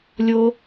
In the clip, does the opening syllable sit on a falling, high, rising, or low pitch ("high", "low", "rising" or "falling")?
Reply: high